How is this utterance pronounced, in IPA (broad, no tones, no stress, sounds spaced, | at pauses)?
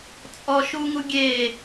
t͡sʼ ɔ ʃ u ŋ u ɡʲ e